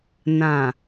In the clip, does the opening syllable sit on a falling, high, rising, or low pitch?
low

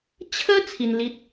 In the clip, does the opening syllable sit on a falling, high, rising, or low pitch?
high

